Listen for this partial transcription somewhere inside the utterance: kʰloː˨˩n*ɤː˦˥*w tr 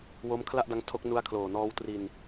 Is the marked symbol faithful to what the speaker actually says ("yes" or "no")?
no